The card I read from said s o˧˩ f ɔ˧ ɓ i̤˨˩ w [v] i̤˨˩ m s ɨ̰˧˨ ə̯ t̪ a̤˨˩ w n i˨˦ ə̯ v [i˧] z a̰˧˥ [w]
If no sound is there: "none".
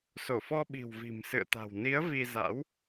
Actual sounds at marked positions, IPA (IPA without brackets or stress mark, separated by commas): v, i˧, w